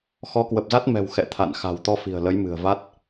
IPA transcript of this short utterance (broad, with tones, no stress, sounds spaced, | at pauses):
x ɔ˨˦ k w ə˨˩ p̚ z a˦˥ t̚ m ɛ̤˨˩ w x ɛ̰˧˨ t̪ʰ a̰˧˨ n x a̤˨˩ w t̪ ɔ˧ f i̤˨˩ ə̯ l ə˨˦ j m ɨ̤˨˩ ə̯ v a˦˥ t̚